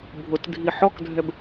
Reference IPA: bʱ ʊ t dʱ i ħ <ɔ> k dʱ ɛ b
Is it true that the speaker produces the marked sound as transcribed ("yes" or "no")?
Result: yes